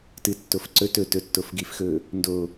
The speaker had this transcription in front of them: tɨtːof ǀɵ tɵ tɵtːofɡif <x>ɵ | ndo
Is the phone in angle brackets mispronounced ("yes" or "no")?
no